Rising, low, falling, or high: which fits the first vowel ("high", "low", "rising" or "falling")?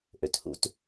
low